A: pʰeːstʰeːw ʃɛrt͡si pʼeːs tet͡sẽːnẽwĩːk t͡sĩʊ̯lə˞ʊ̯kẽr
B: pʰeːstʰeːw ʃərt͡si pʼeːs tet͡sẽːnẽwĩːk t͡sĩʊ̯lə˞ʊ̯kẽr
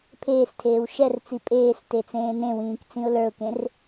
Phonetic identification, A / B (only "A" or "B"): A